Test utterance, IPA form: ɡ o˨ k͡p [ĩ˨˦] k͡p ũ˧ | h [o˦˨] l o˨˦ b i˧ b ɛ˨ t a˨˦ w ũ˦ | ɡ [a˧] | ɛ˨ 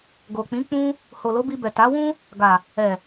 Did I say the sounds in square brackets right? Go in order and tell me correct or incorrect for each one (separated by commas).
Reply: correct, incorrect, incorrect